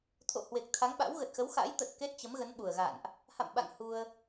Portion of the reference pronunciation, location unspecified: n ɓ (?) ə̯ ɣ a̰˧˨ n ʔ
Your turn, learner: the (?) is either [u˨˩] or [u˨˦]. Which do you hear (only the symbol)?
u˨˩